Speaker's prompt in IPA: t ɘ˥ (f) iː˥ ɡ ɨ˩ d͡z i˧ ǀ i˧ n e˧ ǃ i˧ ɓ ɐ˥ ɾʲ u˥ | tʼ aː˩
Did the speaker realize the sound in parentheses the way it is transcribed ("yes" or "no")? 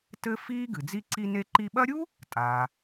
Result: yes